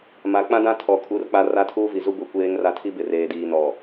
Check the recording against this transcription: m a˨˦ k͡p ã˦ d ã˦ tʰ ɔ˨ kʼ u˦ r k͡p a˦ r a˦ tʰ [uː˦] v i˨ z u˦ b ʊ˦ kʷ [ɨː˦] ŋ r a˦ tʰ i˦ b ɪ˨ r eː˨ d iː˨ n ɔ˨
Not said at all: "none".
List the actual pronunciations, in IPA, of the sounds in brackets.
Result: uː˦, eː˦

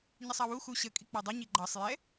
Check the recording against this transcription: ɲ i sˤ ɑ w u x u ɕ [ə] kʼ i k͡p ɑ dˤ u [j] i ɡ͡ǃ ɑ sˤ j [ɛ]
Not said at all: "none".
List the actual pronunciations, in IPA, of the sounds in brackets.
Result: ə, ɲ, ɛ

